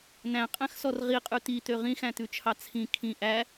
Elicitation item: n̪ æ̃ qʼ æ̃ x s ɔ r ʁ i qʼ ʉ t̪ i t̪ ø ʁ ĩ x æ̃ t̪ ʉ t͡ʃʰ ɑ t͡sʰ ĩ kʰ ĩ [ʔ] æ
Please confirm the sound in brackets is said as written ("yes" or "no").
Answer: yes